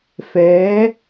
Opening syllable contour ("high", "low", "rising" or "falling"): rising